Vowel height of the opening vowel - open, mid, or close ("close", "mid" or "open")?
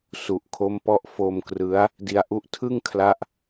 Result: close